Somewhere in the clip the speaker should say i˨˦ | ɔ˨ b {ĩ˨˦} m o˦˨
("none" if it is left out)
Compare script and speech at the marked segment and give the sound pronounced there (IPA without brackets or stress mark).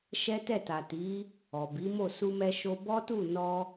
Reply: i˨˦